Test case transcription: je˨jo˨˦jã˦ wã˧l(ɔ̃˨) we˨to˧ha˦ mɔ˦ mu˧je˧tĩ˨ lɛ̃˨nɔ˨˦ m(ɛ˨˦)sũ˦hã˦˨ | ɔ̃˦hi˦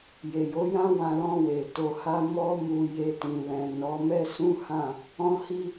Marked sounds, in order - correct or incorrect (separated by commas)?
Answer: incorrect, incorrect